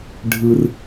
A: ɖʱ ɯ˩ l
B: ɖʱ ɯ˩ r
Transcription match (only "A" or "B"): B